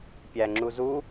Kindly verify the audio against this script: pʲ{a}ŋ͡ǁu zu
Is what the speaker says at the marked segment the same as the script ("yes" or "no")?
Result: no